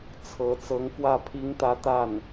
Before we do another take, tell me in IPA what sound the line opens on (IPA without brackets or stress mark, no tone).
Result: t͡sʰ